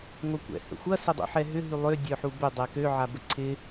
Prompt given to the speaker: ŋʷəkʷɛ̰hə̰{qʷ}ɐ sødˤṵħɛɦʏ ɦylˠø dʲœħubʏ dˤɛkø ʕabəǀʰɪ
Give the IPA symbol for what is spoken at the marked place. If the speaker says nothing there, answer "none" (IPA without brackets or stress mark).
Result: xʷ